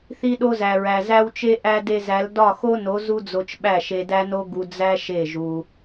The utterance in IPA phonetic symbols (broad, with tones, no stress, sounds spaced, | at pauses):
θ i˧ ɗ o˧ z æ˨ ɹ æ˨ z æ˦ w t͡ʃ e˦ ʔ æ˧ d e˧ z æ˨˦ l d ɒ˦˨ x o˦ n o˨˦ z u˦ d͡z o˧ t͡ʃ ɓ æ˦˨ ʃ e˧ d æ˦ n o˦ ɡ u˧ d͡z æ˦ ʃ e˦˨ ʒ u˧